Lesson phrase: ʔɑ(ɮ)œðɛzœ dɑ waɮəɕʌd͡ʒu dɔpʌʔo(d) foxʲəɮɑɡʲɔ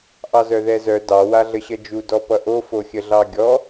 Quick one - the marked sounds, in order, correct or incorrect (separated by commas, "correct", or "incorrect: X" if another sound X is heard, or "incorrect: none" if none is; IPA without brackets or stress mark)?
incorrect: z, incorrect: none